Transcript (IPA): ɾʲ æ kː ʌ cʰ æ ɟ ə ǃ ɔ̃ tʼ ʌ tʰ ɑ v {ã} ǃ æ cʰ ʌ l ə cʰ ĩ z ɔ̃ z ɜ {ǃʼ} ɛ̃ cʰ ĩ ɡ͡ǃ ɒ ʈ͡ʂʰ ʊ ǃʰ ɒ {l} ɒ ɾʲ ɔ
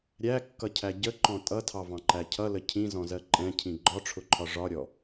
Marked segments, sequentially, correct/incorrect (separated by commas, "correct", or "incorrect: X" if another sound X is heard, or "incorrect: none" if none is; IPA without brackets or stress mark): incorrect: ɑ̃, correct, incorrect: ʐ